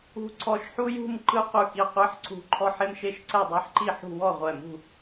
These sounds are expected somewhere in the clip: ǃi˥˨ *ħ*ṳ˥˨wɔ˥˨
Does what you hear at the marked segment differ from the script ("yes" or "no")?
no